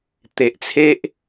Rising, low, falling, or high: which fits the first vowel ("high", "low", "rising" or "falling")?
low